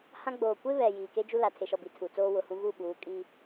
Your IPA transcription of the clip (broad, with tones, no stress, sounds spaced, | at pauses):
h ã˦ ɡ͡b oː˨ kʷ e˦ β ɛ˨ j iː˨ k e˦ d͡ʒ u˦ l a˨ tʰ e˨ ʃ ɔ˨ b i˨ tʰ u˨ t͡s oː˦ w ʊ˨ h ũ˦ ɣ u˦˨ ɓ uː˨˦ kʼ i˦